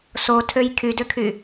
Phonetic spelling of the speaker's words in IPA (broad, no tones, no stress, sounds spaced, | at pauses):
s o tʰ ø j kʰ y d ø kʰ y